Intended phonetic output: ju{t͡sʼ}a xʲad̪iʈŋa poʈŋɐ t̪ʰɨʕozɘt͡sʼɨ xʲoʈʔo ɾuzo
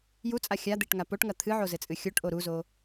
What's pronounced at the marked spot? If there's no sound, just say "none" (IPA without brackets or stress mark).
t͡sʼ